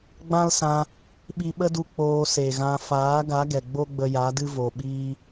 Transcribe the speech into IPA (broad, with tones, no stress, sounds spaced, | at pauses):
ɡ͡b ã˦ l s ã˧ | ɓ i˧ ɓ ə˦ d u˧ k͡p oː˧ s e˨ ɣ ã˧ f aː˨˦ ɡ a˨˦ ɡ ɛ˨ ɡ͡b o˦ ɡ͡b ə˧ j a˨˦ d ɨ˦ v o˨ ɓ iː˦